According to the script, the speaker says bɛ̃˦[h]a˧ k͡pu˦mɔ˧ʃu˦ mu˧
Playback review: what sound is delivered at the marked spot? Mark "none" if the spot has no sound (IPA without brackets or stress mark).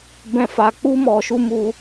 f